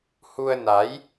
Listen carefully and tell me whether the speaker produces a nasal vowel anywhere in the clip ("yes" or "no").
no